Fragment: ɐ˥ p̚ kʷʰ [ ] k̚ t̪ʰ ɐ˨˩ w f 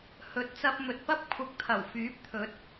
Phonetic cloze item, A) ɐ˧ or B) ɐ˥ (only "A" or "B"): A